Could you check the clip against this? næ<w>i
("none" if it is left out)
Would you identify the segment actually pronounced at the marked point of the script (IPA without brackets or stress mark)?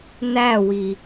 w